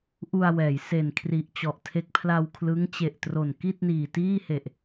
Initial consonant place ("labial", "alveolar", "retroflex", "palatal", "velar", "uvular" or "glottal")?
glottal